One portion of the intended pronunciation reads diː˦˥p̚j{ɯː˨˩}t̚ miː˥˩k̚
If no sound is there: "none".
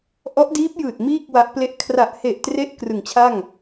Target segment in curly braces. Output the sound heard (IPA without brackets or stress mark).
ɯː˨˩